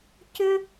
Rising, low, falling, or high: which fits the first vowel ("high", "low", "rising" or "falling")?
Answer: high